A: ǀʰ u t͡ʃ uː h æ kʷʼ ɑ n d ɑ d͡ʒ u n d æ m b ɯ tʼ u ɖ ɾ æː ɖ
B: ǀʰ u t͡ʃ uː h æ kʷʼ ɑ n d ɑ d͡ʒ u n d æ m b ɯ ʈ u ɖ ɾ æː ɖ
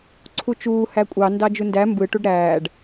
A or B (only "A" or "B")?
B